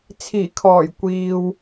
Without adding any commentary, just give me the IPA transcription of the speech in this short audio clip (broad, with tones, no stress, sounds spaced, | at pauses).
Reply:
t͡sʰ iː˨˩ kʰ ɔː˨˩ j kʷ iː˨ w